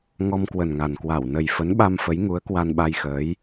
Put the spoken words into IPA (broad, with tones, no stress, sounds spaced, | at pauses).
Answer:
ŋ ɔ˧ m k w ə˨˩ n ŋ a˨˩ n k w a˧˩ w n ə˨˩ j f ə˨˦ n ɓ a˧ m f ə˨˦ j ŋ u˨˦ ə̯ k w a˧ n ɓ a˧ j x əː˨˦ j